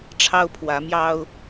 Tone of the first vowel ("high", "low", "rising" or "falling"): high